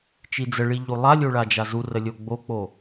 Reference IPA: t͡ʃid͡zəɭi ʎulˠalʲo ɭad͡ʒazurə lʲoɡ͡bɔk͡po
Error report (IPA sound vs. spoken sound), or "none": ɔ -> o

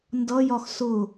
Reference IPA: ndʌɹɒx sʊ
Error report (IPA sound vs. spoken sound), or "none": ɹ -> j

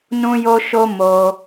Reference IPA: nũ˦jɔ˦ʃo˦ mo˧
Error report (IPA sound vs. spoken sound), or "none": ɔ˦ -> o˦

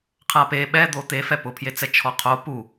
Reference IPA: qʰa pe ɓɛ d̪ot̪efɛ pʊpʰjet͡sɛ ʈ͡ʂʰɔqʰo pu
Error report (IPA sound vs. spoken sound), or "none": ʈ͡ʂʰ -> t͡ʃʰ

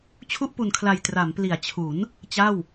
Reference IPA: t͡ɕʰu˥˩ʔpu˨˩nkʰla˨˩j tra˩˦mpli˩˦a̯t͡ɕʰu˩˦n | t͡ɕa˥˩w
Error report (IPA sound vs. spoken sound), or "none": none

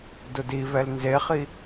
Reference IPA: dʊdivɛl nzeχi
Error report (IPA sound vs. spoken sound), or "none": none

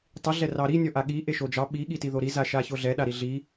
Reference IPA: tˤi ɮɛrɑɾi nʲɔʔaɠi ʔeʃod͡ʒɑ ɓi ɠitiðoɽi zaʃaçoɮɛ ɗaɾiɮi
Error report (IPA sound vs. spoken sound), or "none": ɽ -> ɾ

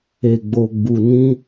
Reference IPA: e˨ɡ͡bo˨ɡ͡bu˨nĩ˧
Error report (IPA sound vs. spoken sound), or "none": none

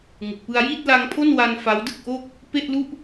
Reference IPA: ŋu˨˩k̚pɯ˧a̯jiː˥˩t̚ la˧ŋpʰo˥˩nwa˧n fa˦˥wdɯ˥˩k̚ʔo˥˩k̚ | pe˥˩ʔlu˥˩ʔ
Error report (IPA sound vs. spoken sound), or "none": none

